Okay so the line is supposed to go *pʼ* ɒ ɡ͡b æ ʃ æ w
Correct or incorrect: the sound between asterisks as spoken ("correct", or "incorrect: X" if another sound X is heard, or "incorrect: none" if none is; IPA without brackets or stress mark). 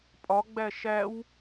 correct